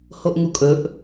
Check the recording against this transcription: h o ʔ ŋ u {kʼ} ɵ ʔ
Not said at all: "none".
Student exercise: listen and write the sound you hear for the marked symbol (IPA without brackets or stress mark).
kʼ